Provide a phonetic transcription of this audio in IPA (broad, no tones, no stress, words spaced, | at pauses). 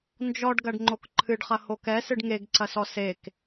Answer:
nd͡ʒɔɖɡɐɖ ŋ͡ǃokǃʰɨɖχɐ hokɛsɨɖ ŋeɡǀɐsɔ sek